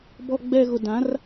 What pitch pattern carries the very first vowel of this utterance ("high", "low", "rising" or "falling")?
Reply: low